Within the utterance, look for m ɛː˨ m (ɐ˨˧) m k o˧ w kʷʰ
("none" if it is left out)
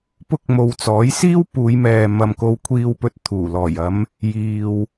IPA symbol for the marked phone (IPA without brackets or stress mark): ɐ˨